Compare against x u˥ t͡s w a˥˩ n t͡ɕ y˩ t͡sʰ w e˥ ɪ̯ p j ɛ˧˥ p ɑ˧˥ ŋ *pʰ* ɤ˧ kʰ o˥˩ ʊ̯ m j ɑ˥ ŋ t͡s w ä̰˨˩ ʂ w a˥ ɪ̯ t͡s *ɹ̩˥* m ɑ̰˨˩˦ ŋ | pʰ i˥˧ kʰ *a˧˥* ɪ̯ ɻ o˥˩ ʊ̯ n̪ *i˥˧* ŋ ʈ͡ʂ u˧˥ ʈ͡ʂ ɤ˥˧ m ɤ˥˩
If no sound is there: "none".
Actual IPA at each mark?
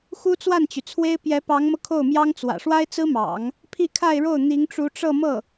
m, ɹ̩˥, a˥˧, i˧˥

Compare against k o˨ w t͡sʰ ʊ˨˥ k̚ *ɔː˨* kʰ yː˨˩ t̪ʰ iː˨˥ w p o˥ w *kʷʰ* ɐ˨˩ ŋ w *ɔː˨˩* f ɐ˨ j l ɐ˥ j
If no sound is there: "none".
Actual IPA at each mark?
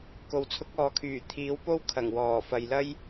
ɔː˨, kʰ, ɔː˨˩

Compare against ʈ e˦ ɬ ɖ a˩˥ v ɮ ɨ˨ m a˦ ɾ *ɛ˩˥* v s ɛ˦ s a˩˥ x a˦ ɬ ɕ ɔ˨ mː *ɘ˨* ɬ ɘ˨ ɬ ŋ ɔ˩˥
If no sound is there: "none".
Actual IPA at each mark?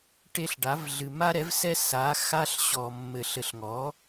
ɛ˩˥, ɘ˨

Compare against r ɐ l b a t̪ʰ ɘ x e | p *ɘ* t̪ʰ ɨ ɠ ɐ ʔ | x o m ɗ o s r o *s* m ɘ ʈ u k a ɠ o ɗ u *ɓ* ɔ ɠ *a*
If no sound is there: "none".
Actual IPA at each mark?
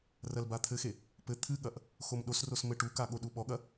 ɘ, s, ɓ, ɐ

